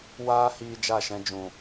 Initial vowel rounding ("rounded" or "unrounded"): unrounded